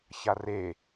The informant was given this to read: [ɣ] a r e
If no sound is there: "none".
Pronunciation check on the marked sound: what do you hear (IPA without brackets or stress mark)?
ç